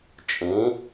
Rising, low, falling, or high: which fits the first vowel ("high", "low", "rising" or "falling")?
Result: rising